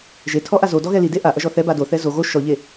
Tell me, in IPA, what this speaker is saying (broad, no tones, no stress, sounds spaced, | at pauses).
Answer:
ʒ e tʰ ɔ ʔ a z o d ɔ ɣ ɛ l i d e ʔ a ʔ ɐ ʒ ɔ θ ɛ b a d o θ ɛ z o ɣ o ʃ ɔ ʎ e